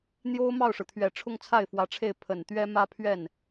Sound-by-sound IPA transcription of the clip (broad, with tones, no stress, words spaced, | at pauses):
n̪jo˥ʊ̯ mɑ˥˩ʊ̯ʂɻ̩˩ t̪ʰɥɛ˨˩ ʈ͡ʂʰʊ˥˧ŋt͡sʰa˥˩ɪ̯fwä˧˥ʈ͡ʂʰe˥˩ɪ̯ pʰə˨˩nt̪ɥɛ˥mä˥pʰɥɛ˥˩n